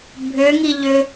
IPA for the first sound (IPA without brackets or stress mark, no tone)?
bʱ